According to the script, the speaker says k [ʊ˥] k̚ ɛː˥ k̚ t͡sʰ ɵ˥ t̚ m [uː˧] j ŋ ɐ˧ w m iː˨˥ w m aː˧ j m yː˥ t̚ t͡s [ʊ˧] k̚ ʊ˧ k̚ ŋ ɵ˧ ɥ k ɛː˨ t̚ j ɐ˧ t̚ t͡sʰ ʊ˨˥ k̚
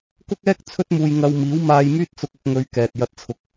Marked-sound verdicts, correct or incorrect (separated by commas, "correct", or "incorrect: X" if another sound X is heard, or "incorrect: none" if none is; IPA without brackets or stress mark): correct, correct, correct